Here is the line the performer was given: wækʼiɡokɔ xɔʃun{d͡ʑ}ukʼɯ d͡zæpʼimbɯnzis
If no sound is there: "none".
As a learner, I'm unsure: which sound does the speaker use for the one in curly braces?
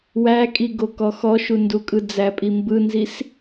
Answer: d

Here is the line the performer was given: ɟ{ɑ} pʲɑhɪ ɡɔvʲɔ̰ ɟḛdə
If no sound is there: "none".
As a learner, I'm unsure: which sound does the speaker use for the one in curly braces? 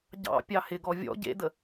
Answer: ɑ̰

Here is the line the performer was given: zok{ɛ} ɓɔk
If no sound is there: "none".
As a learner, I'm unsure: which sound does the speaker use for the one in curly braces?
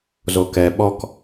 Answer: ɛ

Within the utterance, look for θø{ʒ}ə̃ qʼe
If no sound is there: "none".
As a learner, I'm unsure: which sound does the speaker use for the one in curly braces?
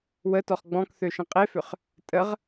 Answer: ʃ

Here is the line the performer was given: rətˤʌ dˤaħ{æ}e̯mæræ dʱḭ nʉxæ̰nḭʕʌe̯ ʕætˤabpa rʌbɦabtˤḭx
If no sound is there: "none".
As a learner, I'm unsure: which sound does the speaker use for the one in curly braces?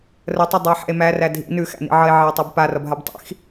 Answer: æ̰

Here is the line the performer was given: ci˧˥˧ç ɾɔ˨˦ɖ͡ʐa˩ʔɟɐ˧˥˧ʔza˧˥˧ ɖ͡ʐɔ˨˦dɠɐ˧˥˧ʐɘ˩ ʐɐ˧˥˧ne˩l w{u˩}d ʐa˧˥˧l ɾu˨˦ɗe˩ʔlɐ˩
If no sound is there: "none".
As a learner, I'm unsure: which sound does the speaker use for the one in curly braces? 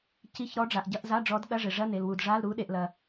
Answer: u˩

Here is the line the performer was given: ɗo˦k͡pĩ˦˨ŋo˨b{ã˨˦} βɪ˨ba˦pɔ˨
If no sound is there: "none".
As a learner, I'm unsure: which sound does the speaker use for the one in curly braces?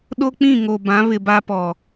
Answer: ã˨˦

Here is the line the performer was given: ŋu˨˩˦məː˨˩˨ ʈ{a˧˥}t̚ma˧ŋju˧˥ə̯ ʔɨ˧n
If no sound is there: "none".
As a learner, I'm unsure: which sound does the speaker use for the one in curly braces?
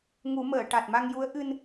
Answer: a˨˩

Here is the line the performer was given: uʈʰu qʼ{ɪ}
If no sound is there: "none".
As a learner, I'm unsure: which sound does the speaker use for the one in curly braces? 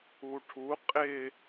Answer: ɪ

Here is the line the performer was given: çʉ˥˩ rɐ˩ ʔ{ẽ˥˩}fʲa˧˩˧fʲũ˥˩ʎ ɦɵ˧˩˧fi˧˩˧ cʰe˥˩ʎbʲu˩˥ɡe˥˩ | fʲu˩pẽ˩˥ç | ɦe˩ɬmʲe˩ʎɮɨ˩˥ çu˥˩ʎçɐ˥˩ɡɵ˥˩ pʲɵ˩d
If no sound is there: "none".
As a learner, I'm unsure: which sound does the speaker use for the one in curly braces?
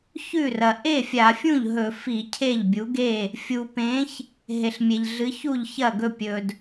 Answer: e˥˩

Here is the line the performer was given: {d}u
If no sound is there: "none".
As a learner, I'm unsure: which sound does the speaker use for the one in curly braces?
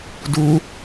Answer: d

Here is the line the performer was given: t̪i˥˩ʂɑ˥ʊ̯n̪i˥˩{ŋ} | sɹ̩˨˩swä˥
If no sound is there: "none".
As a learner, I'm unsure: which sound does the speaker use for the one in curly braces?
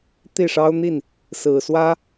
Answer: n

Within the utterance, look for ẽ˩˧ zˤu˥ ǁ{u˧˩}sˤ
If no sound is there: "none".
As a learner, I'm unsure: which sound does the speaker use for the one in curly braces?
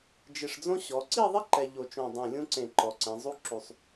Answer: u˧˩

